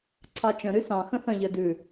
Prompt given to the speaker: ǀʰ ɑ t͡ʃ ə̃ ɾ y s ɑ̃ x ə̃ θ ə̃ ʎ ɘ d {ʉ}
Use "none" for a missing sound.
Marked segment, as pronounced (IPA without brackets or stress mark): ʉ